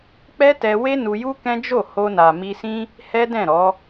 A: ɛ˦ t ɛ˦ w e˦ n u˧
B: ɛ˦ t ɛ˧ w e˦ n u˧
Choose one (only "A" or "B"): B